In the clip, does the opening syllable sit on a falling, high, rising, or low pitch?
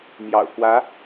low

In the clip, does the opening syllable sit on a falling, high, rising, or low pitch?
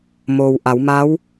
low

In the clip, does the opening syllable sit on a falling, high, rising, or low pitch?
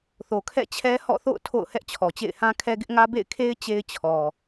low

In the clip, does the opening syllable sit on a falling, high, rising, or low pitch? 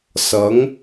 rising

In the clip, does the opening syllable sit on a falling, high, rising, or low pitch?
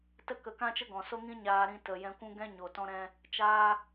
high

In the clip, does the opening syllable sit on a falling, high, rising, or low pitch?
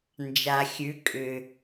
low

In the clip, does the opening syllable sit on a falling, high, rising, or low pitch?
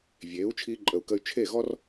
rising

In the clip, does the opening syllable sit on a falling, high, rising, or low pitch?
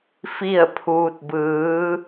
falling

